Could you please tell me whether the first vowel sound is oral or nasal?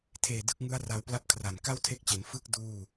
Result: oral